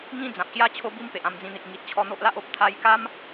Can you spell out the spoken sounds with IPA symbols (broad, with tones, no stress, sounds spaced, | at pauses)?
ŋ ĩ˥˧ d͡z ã˨ p̚ ɕ j a˦ t͡ɕʰ o˦ b i˦ m p e˨ ʔ ã˧ m d͡z ĩ˧ n̪ i˨ k̚ ŋ i˨ t̚ t͡ɕʰ ɔ˧ n̪ o˦ ʔ l a˦ ʔ o˦ p̚ t̪ʰ a˧ j k a˦ m